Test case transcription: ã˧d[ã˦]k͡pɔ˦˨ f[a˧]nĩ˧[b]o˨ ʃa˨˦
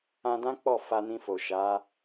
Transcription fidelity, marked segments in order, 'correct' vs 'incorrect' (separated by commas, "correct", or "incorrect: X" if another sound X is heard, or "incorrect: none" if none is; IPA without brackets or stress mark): correct, correct, incorrect: f